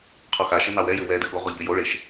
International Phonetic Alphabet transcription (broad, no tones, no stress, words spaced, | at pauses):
qʰɔxaʃɘ nɑwɛjɘ wɛdɘ ɠoʁɔ ʎɘjoɭeʃ